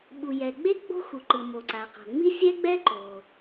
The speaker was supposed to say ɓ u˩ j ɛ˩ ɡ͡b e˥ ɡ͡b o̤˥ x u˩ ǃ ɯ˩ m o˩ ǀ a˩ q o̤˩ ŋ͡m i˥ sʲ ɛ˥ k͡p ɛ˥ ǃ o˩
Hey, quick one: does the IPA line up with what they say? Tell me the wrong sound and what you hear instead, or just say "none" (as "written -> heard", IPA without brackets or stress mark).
k͡p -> ɡ͡b